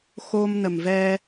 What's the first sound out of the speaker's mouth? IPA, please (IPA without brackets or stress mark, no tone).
x